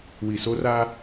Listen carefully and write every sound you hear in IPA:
wi˨so˦ra˦

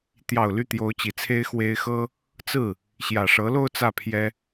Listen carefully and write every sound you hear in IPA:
t̪jɑ˨˩ʊ̯ ly˥˩t̪jo˧˥ʊ̯t͡ɕi˨˩t͡sʰe˥ɪ̯ xwe˥ɪ̯ xɤ˥ | t͡sɹ̩˥˩ | ɕjä˨˩ʂɤ˧˥lo˥˧ʊ̯ t͡sä˥˩pʰjɛ˥

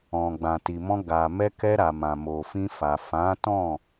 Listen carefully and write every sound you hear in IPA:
ɔ̃˨ ɡ͡bã˨ti˨mɔ̃˧ ɡa˨ mɛ˧kɛ˧ɾa˨ mã˨mo˨fĩ˧fa˨ fã˨˦ tɔ̃˦˨

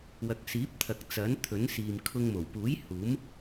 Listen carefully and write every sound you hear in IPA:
wɐ˨k̚siː˨˥p̚t̪ʰɐ˨k̚ t͡sɐ˨˥n t̪ʰɵ˨˥nsiː˨mkʰʊ˧ŋ mo˨˩wpuː˨˥j huː˨˥m

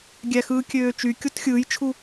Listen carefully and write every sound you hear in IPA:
ɡʲæxɯːkʲøːt͡ʃy kʲotxʲɯːjt͡ʃʰu

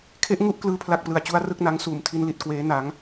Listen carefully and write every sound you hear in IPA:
kʰe˦˥ʔŋu˥˩ʔ klɯː˥˩pʰla˥˩k̚ plɯ˨˩a̯t͡ɕu˦˥a̯rɯ˥˩k̚na˦˥ŋ suː˨˩mtʰi˧nli˨˩t̚ kweː˦˥ na˦˥ŋ

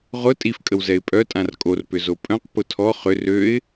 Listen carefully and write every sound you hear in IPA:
ʁʊ tʼifkʼəwzɛɪ̯ pʼœtʼãr kʼorpʏ zopʼœ̃q pʊtʰɔ χʏ røɪ̯

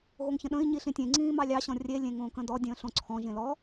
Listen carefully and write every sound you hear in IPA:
ɣoŋçə̃ɗə̃i̯ ɲiɬĩtʲẽŋ͡ǀĩː mɑlʲɑ ɕɔ̃rʲe lʲẽŋõːkə̃dɔ dʲə̃ːɬõǀʰɔ̃ʒẽ lɔ

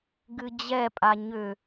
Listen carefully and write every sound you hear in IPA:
ɡɨd͡ʑɛpʼa ɲʏ

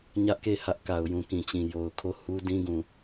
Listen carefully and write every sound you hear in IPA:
ɲä˦ʔke˦˨ hä˦ʔ ka˨ʊ̯jũ˨kĩ˨t͡ɕĩ˨ jo˨ʊ̯ kʰo˦˨hu˦dĩ˦ɡũ˨

